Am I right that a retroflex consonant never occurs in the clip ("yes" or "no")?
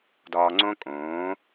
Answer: yes